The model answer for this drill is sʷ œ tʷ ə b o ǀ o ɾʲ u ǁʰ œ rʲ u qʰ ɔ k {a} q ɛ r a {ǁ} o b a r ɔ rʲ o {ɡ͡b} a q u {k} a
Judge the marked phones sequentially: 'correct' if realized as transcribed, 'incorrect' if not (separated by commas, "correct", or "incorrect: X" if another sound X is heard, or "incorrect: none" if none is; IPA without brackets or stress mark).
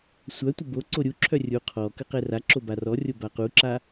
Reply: incorrect: ə, correct, incorrect: b, incorrect: ǁ